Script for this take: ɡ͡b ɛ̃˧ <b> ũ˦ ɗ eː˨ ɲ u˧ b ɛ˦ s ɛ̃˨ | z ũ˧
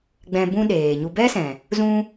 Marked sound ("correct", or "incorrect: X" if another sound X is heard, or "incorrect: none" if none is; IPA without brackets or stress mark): correct